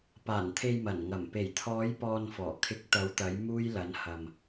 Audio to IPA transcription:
paː˨˩nt̪ʰe˨j mɐ˨˩nŋɐ˨˩m pe˨˩jt̪ʰɔː˨˧jpɔː˨n fɔː˨˩kʰɪ˨˥k̚t̪ɐ˨˧wt̪ɐ˨˧j muː˧jlɐ˨˧nhɐ˨m

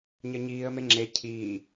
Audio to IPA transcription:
ɲɜɲiːə̯me ŋ͡ǁe cʰiː

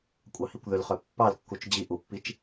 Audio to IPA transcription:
kʷʼɑhikʷðʏlχœ pːɑlkːut͡ʃ d͡ʑi ʔupːit͡ʃ

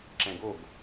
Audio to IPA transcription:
ǁɛ̃ɡoɡ

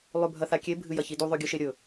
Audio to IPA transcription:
lˠʉbʱɐθakʲe bʱɨjɐçidu ðˤʉɡʲɨʃeɾʲɵ

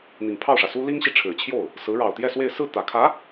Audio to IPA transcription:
n̪i˨˩ŋpʰɑ˥˩ʊ̯ʂä˩su˥ li˥ŋɕi˨ʈ͡ʂʰɻ̩˨˩t͡ɕʰjo˥˩ʊ̯ | sɹ̩˧˥ ɻɑ˨˩ʊ̯t̪jɛ˥˧swe˥˧ɪ̯ sɹ̩˥˩t̪ä˨˩kʰä˧˥

